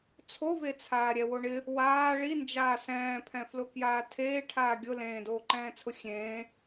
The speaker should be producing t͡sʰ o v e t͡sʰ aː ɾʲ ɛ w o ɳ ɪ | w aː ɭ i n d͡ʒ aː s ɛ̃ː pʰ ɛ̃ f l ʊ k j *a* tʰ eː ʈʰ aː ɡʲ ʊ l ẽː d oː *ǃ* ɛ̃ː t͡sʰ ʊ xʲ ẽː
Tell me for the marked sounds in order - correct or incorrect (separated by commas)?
incorrect, correct